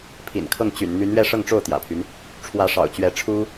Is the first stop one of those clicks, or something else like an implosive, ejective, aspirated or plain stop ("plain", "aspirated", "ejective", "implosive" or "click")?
aspirated